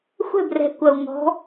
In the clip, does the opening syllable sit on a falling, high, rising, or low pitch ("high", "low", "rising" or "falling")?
falling